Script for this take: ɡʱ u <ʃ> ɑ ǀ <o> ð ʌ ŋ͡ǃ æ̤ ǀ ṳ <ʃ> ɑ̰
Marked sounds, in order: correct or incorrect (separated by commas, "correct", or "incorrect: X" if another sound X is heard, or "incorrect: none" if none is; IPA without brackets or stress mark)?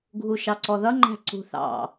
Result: correct, incorrect: ɔ, incorrect: θ